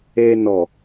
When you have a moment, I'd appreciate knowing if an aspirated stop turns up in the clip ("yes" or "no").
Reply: no